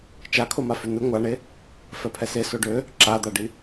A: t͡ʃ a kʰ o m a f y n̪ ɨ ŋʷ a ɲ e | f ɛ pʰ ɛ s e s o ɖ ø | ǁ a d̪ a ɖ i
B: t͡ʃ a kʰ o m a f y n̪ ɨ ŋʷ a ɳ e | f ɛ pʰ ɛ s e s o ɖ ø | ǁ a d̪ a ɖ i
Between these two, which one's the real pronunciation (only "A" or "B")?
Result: B